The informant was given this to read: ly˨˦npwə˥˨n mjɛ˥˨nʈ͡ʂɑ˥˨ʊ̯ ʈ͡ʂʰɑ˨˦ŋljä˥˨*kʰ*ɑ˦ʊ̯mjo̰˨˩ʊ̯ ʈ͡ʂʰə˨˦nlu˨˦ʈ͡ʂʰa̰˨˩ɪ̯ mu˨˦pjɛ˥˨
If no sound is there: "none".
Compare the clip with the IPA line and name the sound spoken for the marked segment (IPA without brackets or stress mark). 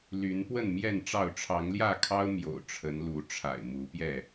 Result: kʰ